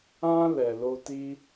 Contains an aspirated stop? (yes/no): no